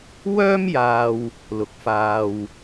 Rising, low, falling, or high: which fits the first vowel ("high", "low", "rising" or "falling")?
high